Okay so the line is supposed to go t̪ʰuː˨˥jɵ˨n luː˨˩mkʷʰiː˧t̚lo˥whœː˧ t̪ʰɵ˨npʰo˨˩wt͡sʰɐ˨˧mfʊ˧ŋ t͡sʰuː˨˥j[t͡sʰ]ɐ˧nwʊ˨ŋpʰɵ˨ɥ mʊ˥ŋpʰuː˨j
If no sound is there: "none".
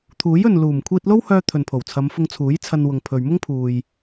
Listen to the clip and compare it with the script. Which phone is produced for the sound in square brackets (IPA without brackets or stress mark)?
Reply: t͡sʰ